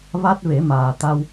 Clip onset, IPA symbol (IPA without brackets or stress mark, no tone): v